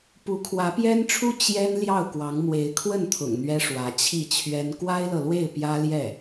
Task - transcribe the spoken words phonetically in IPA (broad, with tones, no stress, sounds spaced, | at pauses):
p u˧˥ kʰ w ä˧˥ p j ɛ˥ n ʈ͡ʂʰ u˥ t͡ɕ j ɛ˥ n l j ɑ˥˩ ʊ̯ k w ɑ˧˥ ŋ m w e˧˥ ɪ̯ kʰ w ə˥˩ n t̪ʰ ʊ̰˨˩ ŋ n̪ ɥ ɛ˥ ʂ w ä˧˥ t͡ɕʰ i˥˩ t͡ɕʰ ɥ ɛ˥ n k w a˥ ɪ̯ l ɤ˨ l w e˥˩ ɪ̯ p j ä˥ l j ɛ˥˩